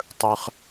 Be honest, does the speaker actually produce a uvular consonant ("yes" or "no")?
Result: yes